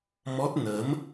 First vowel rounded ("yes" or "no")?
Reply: yes